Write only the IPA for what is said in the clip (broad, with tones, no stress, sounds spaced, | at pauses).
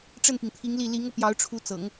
ʈ͡ʂ ə˥˩ n p i˩ ŋ t̪ʰ i˧˥ ŋ l i˥˩ l i˧˥ ŋ ɤ˧ p j ɑ˧˥ ʊ̯ ʈ͡ʂʰ u˧˥ t͡s ɤ̰˨˩˦ ŋ